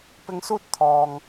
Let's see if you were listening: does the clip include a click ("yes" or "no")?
no